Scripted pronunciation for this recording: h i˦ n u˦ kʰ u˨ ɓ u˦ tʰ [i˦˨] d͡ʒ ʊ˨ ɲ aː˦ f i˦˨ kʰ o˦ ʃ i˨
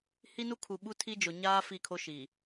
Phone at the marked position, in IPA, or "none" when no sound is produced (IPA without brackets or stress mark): i˦